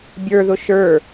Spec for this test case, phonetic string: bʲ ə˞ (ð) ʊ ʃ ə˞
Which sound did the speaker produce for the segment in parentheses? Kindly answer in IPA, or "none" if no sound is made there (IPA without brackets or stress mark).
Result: ð